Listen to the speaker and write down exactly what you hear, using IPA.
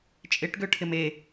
t͡ʃʼ ɪ ʈ ɡ ø ʈʰ ɪ m e

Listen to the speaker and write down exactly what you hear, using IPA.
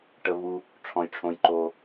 ʈ ə˩ v u˩ | ʈ͡ʂʰ ɔ̃˩ j ʈ͡ʂʰ õ˩ j ǃ o˩

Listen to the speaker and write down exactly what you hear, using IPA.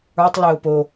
ə˞ tˤ l ɘ ʊ̯ p o

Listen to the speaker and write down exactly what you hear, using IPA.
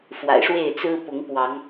f w a̰˨˩ ɪ̯ ʂ w e˥˨ ɪ̯ t͡s ɹ̩˦ p ʊ˨˦ ŋ p w ɑ˨˦ ŋ

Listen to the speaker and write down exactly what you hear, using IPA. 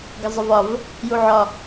ɡ ə zˤ ə v ɒ v | j u ʕ ɒ

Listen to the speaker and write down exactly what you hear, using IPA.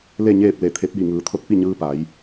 l e˥˨ ɲ eː˥˨ p̚ l e˧˩ t̪ʰ e˧˥ p̚ j i˧˩ ŋ ɯː˩˧ t̪ʰ o˧ t̚ p i˥˨ ɲ ɯː˧ p a˩˧ j

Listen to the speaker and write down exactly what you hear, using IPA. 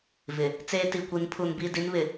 v ɪ˨ | t͡s eː˦ t i˨ kʷ i˨˦ n pʰ u˨ n b i˦˨ d i˦ n β ɪ˨

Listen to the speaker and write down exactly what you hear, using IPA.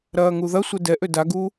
ɾ ɐː ŋ u ð ɐ sʷ ɛ d ɛ ʔ ø d a ɡ uː

